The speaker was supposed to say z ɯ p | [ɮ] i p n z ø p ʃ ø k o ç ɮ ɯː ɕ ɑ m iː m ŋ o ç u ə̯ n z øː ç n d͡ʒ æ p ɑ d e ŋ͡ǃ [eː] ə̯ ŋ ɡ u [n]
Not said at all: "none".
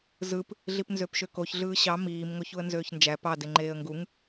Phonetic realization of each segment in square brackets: ɮ, eː, ŋ

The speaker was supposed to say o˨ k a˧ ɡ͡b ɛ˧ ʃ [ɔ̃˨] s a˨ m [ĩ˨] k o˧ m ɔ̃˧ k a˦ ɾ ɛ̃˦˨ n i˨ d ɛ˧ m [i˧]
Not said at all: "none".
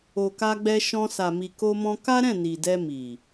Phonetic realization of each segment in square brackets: ɔ̃˧, i˨, i˨

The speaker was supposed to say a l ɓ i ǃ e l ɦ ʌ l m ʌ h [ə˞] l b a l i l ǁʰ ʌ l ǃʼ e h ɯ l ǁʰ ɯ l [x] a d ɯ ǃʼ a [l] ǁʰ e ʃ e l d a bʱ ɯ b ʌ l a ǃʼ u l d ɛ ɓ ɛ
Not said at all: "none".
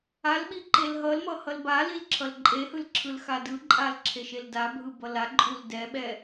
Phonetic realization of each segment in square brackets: ʌ, x, l

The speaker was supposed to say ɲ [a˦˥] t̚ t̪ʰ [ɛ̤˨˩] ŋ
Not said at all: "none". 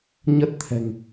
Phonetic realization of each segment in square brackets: ə˦˥, ɛ̤˨˩

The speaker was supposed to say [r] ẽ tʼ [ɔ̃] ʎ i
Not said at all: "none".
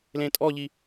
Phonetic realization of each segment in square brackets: l, ɔ

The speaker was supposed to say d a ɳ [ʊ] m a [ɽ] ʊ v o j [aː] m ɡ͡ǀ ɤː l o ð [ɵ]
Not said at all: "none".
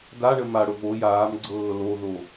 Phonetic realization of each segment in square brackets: ə, ɽ, aː, o

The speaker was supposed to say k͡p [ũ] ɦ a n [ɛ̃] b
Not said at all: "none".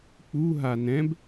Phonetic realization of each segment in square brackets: u, ɛ̃

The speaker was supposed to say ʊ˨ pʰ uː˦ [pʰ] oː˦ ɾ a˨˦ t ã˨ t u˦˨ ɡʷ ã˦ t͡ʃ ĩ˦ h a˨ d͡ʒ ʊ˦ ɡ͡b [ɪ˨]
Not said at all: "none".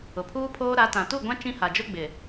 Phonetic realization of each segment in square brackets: pʰ, ɪ˨

